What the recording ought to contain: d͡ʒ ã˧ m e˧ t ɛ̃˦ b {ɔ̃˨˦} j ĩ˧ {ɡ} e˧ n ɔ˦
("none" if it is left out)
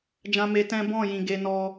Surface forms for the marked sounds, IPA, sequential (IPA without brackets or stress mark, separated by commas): ɔ̃˦˨, ɡ